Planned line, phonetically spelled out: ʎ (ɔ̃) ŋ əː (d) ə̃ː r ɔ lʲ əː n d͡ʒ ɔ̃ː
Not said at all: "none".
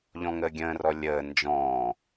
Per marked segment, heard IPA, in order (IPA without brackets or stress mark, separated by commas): ɔ̃, ɡʲ